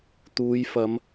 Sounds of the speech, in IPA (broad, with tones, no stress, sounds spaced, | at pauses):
t̪ uː˨˧ j f ɐ˨˧ m